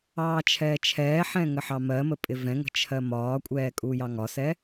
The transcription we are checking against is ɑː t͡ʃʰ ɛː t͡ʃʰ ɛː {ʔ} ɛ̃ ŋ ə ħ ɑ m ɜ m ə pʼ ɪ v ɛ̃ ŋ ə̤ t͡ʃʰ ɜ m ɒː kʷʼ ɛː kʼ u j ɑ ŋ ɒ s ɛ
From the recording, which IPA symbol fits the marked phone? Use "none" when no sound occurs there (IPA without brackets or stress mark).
ħ